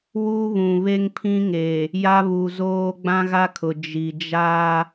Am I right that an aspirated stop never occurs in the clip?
no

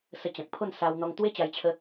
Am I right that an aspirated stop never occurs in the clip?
no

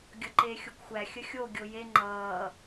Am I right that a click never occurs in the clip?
no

